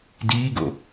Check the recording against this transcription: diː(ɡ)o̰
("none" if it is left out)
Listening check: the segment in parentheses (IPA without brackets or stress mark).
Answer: ɡ